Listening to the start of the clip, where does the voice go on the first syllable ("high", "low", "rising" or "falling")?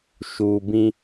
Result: low